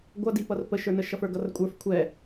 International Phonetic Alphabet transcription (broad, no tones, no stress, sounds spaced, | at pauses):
ɡʷ ʌ d i p ʌ r p ə ʃ ə˞ n ə ʃ ʌ f ə˞ ɡ ʌ r kʷʼ ə˞ f kʷʰ ɛ